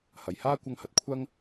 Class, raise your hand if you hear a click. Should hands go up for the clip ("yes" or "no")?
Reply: no